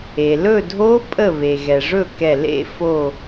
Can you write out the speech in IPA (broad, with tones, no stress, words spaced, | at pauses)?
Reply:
e˩ lɵ˥˩dʱo˦˥ pʼə˥˩βe˩ɣɛ˩ ʐɵ˥˩kɛ˧˩ lḛ˥˩fo˧˩